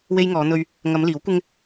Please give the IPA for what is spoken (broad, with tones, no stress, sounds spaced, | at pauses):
w e˧ j ŋ ɔː˨˧ n̪ ɵ˧ ɥ | ŋ ɐ˨˧ m l iː˨˥ w kʷ ɪ˥ ŋ